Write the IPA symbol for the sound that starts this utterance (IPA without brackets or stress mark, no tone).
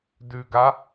d